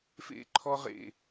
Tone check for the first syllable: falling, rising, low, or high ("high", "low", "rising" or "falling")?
high